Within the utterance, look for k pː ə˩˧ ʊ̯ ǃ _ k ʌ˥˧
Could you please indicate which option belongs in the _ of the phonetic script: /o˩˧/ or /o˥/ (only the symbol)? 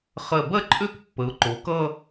o˩˧